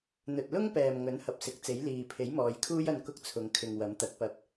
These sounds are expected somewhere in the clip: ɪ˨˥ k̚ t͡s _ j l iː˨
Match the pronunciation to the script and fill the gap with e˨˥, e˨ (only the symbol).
e˨˥